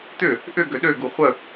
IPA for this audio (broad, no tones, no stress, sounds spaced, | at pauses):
t̪ ʏ | ʔ ʏ ɡ ø ɗ ø ɡ u χʷ ə